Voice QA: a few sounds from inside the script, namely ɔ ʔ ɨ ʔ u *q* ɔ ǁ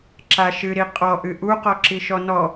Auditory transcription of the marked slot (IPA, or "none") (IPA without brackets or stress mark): q